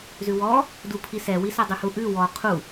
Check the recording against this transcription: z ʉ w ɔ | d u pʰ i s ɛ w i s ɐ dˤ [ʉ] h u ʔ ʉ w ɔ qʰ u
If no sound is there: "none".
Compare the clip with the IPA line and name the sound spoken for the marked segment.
ʉ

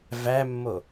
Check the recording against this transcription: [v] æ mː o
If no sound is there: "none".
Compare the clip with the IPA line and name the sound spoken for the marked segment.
v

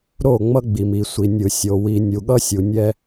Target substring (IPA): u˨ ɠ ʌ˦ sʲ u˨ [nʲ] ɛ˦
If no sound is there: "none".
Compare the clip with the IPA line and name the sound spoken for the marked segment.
nʲ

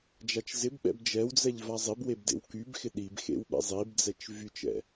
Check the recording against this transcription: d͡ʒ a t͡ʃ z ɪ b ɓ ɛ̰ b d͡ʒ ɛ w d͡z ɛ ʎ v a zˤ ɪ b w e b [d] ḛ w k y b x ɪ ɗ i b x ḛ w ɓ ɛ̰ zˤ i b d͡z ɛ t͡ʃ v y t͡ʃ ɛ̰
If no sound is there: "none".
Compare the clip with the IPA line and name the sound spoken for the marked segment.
d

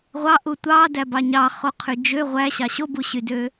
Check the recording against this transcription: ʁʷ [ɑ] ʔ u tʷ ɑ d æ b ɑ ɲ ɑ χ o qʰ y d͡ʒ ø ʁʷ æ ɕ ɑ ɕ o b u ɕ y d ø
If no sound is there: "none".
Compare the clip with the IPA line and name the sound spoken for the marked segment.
ɑ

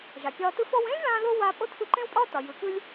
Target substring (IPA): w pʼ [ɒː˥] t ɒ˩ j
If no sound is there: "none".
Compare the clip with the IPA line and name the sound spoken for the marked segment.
ɒː˥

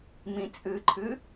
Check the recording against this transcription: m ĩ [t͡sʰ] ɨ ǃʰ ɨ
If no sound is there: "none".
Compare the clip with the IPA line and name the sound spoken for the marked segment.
t͡sʼ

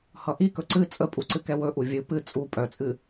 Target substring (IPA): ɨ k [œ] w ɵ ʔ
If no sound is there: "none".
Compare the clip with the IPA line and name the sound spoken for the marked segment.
ɛ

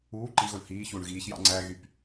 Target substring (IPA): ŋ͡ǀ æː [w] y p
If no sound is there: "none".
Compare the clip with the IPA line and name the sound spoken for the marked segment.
ɣ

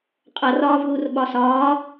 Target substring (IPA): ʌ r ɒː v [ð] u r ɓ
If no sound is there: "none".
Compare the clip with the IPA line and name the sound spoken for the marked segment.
ð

